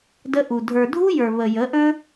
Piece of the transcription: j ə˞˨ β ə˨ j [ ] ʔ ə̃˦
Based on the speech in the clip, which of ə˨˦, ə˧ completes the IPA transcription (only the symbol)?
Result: ə˨˦